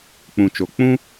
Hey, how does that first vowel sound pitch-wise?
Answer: low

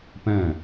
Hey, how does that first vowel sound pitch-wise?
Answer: falling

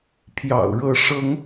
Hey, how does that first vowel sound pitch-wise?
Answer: low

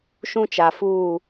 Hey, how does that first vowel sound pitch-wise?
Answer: high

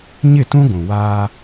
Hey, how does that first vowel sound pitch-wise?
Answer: falling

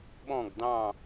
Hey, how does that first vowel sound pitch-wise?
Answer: falling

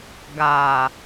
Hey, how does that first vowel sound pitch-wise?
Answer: low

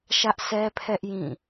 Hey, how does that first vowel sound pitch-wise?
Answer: high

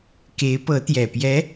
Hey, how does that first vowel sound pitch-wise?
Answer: rising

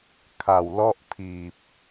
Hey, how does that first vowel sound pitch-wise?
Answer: low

